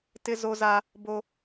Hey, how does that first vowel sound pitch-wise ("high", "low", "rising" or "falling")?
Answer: high